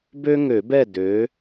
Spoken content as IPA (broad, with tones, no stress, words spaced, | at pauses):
bø˥ŋø˨˩˦bɛ˥˨ dø˩˥